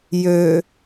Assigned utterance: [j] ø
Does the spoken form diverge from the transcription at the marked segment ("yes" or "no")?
no